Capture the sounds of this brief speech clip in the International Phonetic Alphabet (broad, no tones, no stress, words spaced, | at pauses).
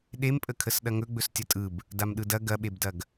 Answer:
ɗempʼəkʰəs ɗɐŋɵɡ͡bɵs tʲɐtʼɯb | damɗɯdɐ ɡɐɓebdɐɡ